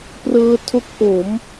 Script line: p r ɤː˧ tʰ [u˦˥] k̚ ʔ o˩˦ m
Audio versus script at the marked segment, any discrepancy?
yes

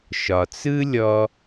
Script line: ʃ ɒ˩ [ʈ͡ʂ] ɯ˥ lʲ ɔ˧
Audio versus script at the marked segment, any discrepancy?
yes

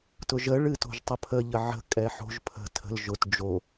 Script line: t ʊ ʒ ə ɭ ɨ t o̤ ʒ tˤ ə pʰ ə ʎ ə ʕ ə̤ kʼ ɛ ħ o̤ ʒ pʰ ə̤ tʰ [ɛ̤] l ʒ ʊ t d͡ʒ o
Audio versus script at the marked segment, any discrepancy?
yes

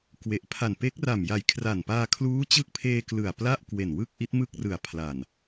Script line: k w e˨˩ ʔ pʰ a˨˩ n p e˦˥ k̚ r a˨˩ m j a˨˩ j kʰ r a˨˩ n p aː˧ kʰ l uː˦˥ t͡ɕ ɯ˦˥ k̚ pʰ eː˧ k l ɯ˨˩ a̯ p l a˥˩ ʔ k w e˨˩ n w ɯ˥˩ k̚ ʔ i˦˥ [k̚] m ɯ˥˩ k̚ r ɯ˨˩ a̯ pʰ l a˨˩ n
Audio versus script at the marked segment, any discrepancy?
yes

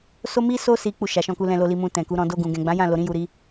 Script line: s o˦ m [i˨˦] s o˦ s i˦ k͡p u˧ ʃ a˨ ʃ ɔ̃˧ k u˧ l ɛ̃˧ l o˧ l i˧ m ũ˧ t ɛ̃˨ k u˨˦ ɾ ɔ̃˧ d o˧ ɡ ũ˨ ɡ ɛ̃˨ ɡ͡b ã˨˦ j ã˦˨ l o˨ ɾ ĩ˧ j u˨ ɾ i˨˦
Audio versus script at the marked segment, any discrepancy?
yes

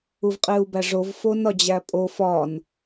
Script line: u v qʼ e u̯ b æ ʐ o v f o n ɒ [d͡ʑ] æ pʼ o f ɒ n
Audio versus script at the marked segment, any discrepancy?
no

